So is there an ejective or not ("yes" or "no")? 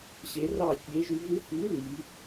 no